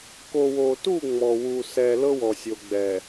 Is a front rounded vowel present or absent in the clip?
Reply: absent